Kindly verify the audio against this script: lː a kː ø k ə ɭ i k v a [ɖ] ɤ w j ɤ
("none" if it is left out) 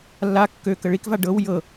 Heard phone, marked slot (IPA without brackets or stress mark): ɖ